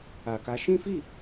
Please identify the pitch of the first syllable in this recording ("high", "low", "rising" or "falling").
low